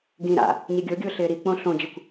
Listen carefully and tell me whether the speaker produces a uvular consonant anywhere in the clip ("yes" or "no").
no